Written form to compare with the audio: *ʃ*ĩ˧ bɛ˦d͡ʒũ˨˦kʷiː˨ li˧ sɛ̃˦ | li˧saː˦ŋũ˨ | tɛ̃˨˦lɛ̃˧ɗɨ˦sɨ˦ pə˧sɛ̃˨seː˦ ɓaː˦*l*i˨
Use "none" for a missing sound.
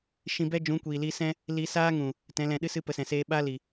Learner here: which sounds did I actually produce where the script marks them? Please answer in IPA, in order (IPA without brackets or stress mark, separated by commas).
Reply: ʃ, l